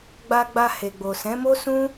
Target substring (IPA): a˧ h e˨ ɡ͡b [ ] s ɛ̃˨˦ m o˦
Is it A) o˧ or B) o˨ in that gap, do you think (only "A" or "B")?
B